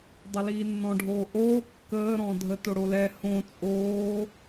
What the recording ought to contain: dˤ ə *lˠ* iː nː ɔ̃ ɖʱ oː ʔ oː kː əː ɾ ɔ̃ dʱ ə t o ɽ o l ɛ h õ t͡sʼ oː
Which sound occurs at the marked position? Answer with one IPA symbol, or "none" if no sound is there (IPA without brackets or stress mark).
l